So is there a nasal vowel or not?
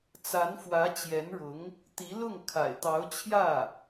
no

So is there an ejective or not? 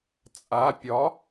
yes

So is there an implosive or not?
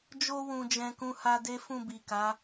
no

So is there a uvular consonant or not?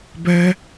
no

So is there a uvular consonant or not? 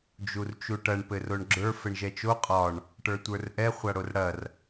yes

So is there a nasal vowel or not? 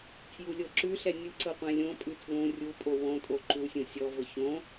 yes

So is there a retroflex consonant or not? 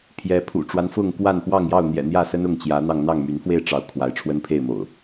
yes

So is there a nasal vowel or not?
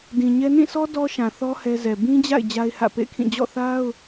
yes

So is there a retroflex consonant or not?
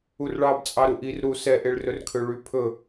yes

